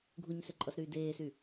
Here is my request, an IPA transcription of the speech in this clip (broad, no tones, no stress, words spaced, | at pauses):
ɡʱuɲsøǃʼɔsɾyː deːsy